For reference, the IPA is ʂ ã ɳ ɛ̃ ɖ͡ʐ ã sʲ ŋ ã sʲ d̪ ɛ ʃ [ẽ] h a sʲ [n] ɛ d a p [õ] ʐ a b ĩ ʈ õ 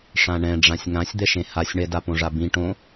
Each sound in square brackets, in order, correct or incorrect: correct, incorrect: ɳ, correct

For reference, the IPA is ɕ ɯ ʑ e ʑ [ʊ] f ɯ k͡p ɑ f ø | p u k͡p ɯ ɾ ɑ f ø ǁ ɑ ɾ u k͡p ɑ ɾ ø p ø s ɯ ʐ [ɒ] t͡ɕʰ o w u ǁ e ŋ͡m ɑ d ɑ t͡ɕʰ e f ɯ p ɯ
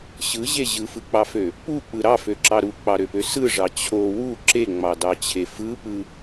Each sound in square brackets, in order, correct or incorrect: incorrect: ɯ, incorrect: ɑ

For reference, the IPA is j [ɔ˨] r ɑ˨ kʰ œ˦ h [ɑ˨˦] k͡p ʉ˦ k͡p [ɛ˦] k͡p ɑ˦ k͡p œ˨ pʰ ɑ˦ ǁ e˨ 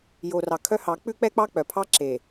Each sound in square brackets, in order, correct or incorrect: incorrect: o˨, correct, correct

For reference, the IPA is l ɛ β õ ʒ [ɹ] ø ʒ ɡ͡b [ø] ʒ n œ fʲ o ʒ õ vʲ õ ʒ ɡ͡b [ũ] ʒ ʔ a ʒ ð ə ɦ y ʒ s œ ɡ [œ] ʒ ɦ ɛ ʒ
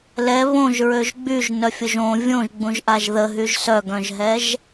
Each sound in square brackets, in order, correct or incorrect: correct, incorrect: y, correct, incorrect: œ̃

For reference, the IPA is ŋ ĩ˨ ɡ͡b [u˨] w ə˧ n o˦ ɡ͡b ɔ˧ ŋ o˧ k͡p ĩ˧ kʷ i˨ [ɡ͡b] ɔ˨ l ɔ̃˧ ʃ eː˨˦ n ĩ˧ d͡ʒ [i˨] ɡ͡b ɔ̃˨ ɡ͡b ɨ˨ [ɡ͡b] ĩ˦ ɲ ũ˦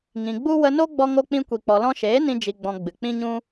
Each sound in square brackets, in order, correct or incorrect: incorrect: u˦, incorrect: k͡p, correct, incorrect: k͡p

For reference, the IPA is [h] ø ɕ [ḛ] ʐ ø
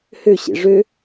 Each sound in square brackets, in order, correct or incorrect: correct, correct

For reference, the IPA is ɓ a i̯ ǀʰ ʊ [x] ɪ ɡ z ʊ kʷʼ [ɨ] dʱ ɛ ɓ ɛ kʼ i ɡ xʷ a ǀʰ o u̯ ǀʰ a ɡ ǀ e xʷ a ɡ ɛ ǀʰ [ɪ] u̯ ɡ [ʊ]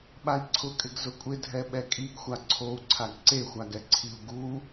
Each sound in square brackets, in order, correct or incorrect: incorrect: kʼ, incorrect: ɪ, incorrect: i, incorrect: u

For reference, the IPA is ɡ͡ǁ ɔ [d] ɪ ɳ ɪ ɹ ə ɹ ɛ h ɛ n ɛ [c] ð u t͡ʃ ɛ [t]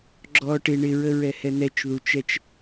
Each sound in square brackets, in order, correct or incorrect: incorrect: ʈ, incorrect: t͡ʃ, incorrect: t͡ʃ

